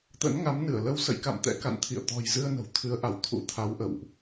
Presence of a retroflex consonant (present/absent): absent